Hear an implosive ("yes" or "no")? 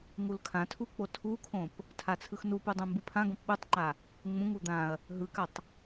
yes